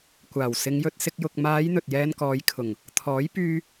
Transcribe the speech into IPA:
kʷaː˨˩wsɪ˨˧ŋjɵ˧t̚sɪ˧k̚ jʊ˨k̚maː˨˧j n̪ɵ˨t̚jɛː˧nkɔː˨˧jkʰʊ˨˩ŋ | t̪ʰɔː˨˥jpyː˧

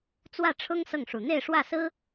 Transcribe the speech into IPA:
t͡swä˥˩ʈ͡ʂʰʊ˥ŋ sɤ˥˩ŋʂu˨˩ n̪e˥˧ɪ̯ʂwä˥˩ sɹ̩˥

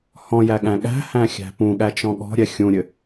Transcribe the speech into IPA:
hɔ̃jæ ɠæ̃ɠæ̤hæ̃ xʲæ̤pũɠæt͡ʃɔ̃ ɠɔ̤ɾʲɛ xʲũɾʲɘ

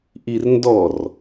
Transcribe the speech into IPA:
ʔirndɔr

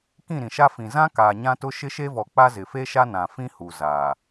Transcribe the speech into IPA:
kĩ˦˨ɾĩ˨ʃa˦ fĩ˨zã˦kaː˨ ɲã˦tʊ˦ ʃɪ˦ʃe˦vɔ˨k͡pa˦ zɪ˨fe˦ʃa˦ nã˨fĩ˦hu˨ zaː˨

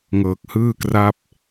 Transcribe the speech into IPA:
ŋɤː˨˩k̚hɯː˥˩kra˥˩p̚

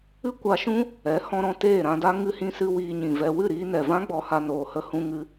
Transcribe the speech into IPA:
ɨ˦ kʷa˧ʃũ˦ | ɛ˨˦ hɔ̃˧ɾɔ̃˧ teː˦˨ɾã˧da˦ ŋɨ˧hĩ˧sɨ˧ wiː˧ɲĩ˨vɛ˧ wɨ˦˨ɾiː˧nɛ˨vã˦ ɡ͡bɔ˧ha˧ noː˨hə˧hũ˧ ŋɨ˧

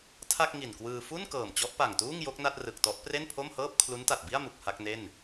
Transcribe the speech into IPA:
tʰa˥˩k̚ ŋi˨˩nkwɯː˧ fu˥˩n kɤː˨˩mt͡ɕɔ˦˥ʔpa˨˩ŋtuː˥˩ŋ jo˦˥k̚na˥˩t̚rɯ˨˩k̚tɔ˦˥ʔ pre˥˩npʰo˥˩mhɤː˥˩p̚ kʰlu˦˥nta˨˩t̚bi˥˩a̯ mu˨˩k̚ha˥˩k̚ne˥˩n

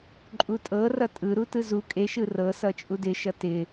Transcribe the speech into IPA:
ǃʼutʼɤ rʌtʼɯ ɾutɯzu kʼeʃɯ rɤsʌ t͡ʃʼudɪʃʌ tɪ

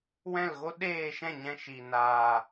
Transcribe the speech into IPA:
wɛ̃˦˨lɣo˦ɗeː˦˨ʃɛ̃˦˨ ɲɛ̃˧ʃi˨ naː˨

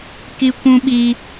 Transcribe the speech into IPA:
ki˦kʷũ˦ɓiː˦

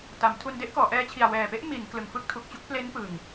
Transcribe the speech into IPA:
ta˩˦m tʰu˧nde˥˩ʔkɔː˩˦ʔɛː˦˥ t͡ɕʰi˨˩a̯wɛː˨˩pe˦˥ʔ mi˩˦n klɯ˨˩ŋfɯ˥˩k̚tʰu˨˩k̚t͡ɕu˥˩k̚ ple˦˥n pɯ˨˩ŋ

